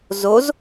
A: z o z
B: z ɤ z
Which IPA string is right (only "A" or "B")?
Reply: A